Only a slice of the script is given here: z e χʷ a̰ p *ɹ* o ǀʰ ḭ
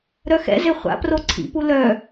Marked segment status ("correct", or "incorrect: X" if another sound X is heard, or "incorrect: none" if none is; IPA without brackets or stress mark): incorrect: r